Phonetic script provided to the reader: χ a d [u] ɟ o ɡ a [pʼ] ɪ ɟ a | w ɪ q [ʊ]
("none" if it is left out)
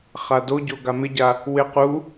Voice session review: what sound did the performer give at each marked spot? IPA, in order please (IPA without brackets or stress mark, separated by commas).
o, m, u